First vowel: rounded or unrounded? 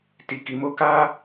unrounded